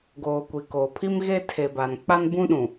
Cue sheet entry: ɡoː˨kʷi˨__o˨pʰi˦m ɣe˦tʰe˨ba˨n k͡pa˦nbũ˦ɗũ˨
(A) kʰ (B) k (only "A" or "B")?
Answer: B